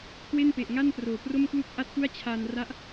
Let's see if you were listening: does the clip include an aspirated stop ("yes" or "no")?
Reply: yes